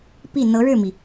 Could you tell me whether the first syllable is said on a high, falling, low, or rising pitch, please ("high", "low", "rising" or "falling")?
falling